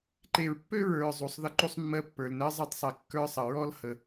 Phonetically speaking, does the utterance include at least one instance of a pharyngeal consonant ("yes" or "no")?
no